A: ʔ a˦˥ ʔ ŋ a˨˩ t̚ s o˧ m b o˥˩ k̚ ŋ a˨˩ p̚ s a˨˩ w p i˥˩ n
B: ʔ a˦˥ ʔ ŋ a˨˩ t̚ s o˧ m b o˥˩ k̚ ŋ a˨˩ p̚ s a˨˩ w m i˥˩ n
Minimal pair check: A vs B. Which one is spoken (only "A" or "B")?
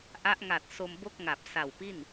A